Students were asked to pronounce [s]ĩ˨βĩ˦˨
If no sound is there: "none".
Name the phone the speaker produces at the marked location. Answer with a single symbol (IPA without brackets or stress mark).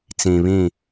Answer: t͡s